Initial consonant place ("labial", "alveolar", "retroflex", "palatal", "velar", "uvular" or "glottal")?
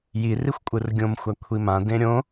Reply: palatal